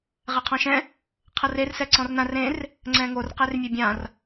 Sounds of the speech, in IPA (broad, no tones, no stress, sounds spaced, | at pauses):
ʁ ɛ qʰ ɔ̃ ʃ ɛ̃ | qʰ ɤ r e r s ɛ ǀ ɔ̃ r n ã r ẽ r | ŋ͡ǀ ɛ̃ ŋ o r q e r mʲ e bʲ ã r